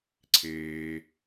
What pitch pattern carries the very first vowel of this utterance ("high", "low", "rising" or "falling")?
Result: low